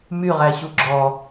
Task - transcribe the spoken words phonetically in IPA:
m y ʁ æ ɕ u ɡ͡ǁ ɔ

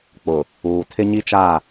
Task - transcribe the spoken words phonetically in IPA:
k͡p ʊ˨ | uː˨ tʰ ɪ˦ ɲ i˦ t͡ʃ a˦˨

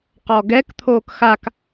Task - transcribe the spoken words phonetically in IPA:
q ɔ ɡ ɛ k t̪ʰ oː k x a k

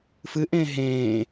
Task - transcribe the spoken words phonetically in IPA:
f ɨ ʔ ẽː ɦ ẽː

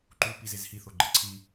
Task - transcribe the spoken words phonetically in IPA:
ǃ u p i z e z h i θ o ɡ͡ǃ ə ǀʰ i

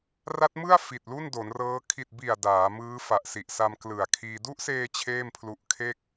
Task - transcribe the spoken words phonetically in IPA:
r a˦˥ t̚ m ɯ˥˩ a̯ f i˨˩ t̚ l u˥˩ n d o˩˦ n r ɤː˦˥ kʰ i˨˩ t̚ b i˨˩ a̯ d aː˩˦ m ɯː˦˥ f a˨˩ ʔ s i˨˩ ʔ s a˧ m k l ɯ˨˩ a̯ kʰ iː˧ d u˦˥ ʔ s eː˧ t͡ɕʰ eː˥˩ m pʰ l u˦˥ ʔ kʰ e˥˩ k̚

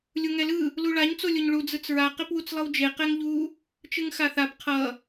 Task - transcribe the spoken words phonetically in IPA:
lʲ u ŋ ɛ l ɯ | l u ɭ a ɲ t͡s o lʲ o ɲ ɭ u d͡z ɯ t͡s ɹ a q e p w u t͡s lˠ ɯ w d͡ʒ e q ɛ ŋ ʎ u | t͡ʃ ɯ ŋ x a θ a p qʰ ʌ

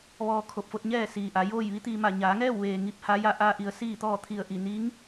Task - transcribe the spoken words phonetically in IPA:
ʋ ɔː˧ kʰ o˧˩ p̚ f o˧ t̚ ɲ ɛː˥˨ s iː˩ ʔ a˩˧ j oː˥˨ j ʋ i˧˥ t̪ iː˧ m a˧˩ ɲ aː˩˧ ŋ ɛː˥˨ w ʋ eː˩ ŋ i˧˥ p̚ h a˧˥ j a˥˨ ʔ aː˧ ʔ i˩˧ ə̯ s iː˥˨ t̪ ɔː˥˨ t̪ʰ i˧˩ ə̯ ʔ i˧˩ n i˧˥ ŋ

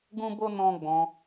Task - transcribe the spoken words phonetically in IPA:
ɡ ũ˦ b o˦ n ɔ̃˦ ɡ͡b ɔ̃˧

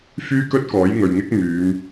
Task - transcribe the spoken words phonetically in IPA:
f yː˥ k ɵ˥ t̚ k ɔː˨˥ j ŋ ɵ˨ ɥ ŋ ɪ˥ k̚ m yː˨˧ m

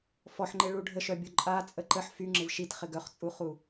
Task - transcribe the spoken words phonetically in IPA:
f ɔ ħ ŋ͡ǃ ɪ ɭ u ɖʱ ə ʃ œ bʲ o ǃʼ a t͡sʼ ə ǃ ə ħ f y ŋ͡ǁ ɪ v ʃ i t χ ɪ ɡ œ χ t͡sʼ u χ u

